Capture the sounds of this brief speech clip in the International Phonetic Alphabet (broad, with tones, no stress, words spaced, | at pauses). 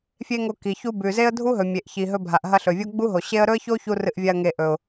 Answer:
fʲe˦ŋo˧ ki˨ çu˧bʉ˨ze˦ə̯ dʱu˦ɦɵ˨ mʲe˨ʔçi˨ɦɵ˧ bʱa˨ʔɦɐ˧ɬɵ˨vʲo˦ ɡ͡bu˦ɦo˨ɕe˦ə̯ ɾɵ˦ə̯ço˦ çu˦rɨ˧ʔvʲa˧ə̯ ŋe˨ ʔɵ˨ʊ̯